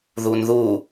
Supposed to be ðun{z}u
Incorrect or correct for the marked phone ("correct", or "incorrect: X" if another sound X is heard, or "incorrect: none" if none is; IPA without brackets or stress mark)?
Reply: incorrect: ð